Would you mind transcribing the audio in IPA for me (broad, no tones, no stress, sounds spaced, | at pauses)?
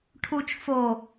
ʈʰ u t͡ʃ f o